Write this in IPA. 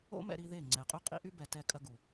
o̰˦ m ɛ̰˧ ɾ i˧ ð e˦˨ ŋ͡ǀ ɛ˨ qʼ y˦ qʼ ḭ˦ ʔ y˦ b ɛ˨ t ɛ˧ kʼ ɐ˧ ɡ u˨

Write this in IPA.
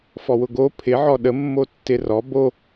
f ɔ w ʊ ɡ o pʰ ɪ ʕ ɔ ɗ ə mː o tː ɪ r ɔ b o

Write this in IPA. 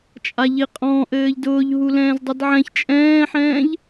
t͡ʃʼ a ʎ i qʼ ɔ̃ ʔ ɘː ʎ d ʊː ʎ ɦ u l ɛ̃ː z dˤ i d ʕ ɛ̃ ç t͡ʃʼ ɛ̃ː ħ ɛ̃ː ʎ

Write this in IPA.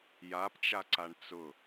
j a p t͡ʃ a ǀ a ɳ t͡s ʊ

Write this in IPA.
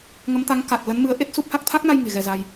ŋ ə˨˦ m t̪ a˨˦ ŋ k a˨˩ t̚ l ə˨˦ n m ɨ˨˦ ə̯ ʔ e˦˥ t̚ s u˦˥ p̚ h a˦˥ k̚ t̪ʰ a˦˥ k̚ n a˧ j ŋ e̤˨˩ ɣ ɛ˧ z a˧ j

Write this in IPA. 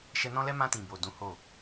ʃ ɛ˧ n ɔ̃˦ l ɛ˦ m ã˧ t ĩ˨ b o˨ d ũ˨˦ h o˦˨

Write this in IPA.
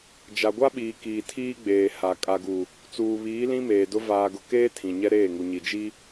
d͡ʒ a˨ ɡʷ a˦ ɓ iː˨ k iː˨ tʰ iː˦ ɡ͡b eː˨ h a˨ kʼ a˨ ɡ u˨ | t͡s uː˨ β iː˨˦ l ĩ˦ m eː˨ d ʊ˦ v aː˨ ɡ ʊ˨ k eː˦ tʰ ĩ˨ ɲ ɛ˦ ɾ eː˦˨ ŋ u˨ ɲ i˨ d͡ʒ i˦

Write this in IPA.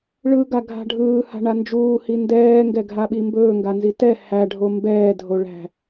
ɭ ɯ ɡ a ɡʱ a̤ ɖʱ ɯː h a̤ ɳ a n d͡ʒ uː h i n d ɛː ŋ ɡ ɛ ɡʱ a ɓ i m b ɵː ŋ ɡ a n z i t ɛ h æ ɖʱ o m b ɛː dʱ o ɭ æ̤

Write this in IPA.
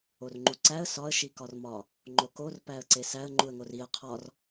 o r ŋ͡ǃ u ǀ æ ə̯ s ɒ ə̯ ʃ i k ɒ r m ɒ | ŋ͡ǃ o k o r p æ ə̯ ǀ e s æ ə̯ ŋ͡ǃ u ə̯ ŋ o r i ə̯ qʰ ɒ r

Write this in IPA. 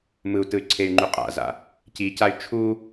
m ɯ u̯ t ɯ y̯ ǀʰ e y̯ ŋ͡ǃ u qʼ a̰ z a̰ | c i c a y̯ t͡ʃʰ u

